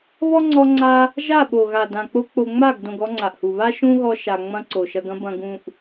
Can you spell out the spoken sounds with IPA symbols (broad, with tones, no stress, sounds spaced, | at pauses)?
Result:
β ɔ˦ ŋ͡ǀ ɔ˧ ŋ͡ǀ a˧ | ʒ a˦˨ ɓ o˨ ɣ a˨ d ã˨ k͡p o˦ k͡p o˧ ŋ͡m a˦˨ ɡ d õ˧ ɡ ɔ˦ ŋ͡ǀ a˨ ʔ h u˨ β a˦ ʃ ũ˦ ɣ ɔ˧ ʃ a˧ ŋ͡m ɐ̃˦ ǀ o˨ ʃ ɐ˧ ɡ ɐ̃˦ b ɐ̃˧ ɡ ũ˧ ʔ